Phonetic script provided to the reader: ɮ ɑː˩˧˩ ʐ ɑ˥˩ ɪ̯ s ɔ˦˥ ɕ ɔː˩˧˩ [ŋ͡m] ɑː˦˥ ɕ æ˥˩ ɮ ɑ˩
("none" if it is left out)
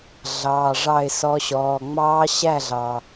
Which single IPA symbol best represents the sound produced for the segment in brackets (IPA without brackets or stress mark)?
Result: ŋ͡m